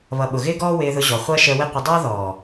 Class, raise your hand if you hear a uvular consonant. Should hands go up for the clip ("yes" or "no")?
yes